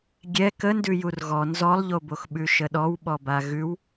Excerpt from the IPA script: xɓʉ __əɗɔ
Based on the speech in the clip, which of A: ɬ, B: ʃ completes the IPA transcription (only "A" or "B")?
B